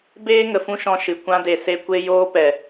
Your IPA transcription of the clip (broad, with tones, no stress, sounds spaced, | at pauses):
b eː˦ ŋ ə˨ f ũ˦ ʃ ɔ̃˧ ʃ ɨ˨ kʷ ã˧ d e˨ s e˧ kʷ e˧ j oː˧ p ɛ˨